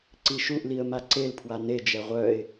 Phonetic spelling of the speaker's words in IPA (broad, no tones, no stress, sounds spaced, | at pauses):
ǀ i ʃ u ʔ l i ə̯ m a ǀ e l pʰ w a n e d͡ʒ ɛ ʁʷ œ ɪ̯